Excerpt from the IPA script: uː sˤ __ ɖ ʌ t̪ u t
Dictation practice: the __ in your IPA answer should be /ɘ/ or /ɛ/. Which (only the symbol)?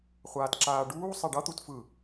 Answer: ɛ